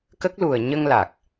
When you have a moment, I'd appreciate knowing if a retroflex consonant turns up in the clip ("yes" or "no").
no